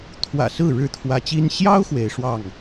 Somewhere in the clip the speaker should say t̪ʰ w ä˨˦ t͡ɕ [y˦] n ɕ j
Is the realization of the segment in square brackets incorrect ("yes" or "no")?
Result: yes